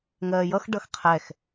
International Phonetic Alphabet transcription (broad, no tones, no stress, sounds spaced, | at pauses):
ŋ ɜː j ʌ x ɖ ʌ x qʰ ɛ x